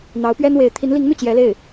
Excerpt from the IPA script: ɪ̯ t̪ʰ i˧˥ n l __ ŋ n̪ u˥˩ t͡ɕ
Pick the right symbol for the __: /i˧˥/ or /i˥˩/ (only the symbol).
i˧˥